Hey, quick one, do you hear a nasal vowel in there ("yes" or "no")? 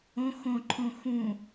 yes